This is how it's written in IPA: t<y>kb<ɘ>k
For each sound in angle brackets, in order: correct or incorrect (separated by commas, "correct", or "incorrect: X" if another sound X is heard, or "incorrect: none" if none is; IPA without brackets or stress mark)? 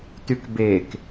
correct, incorrect: e